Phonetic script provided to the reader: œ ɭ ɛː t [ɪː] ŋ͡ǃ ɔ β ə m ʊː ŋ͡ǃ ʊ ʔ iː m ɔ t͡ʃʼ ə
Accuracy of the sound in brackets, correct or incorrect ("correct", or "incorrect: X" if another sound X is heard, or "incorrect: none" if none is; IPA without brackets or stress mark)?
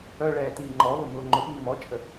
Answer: incorrect: iː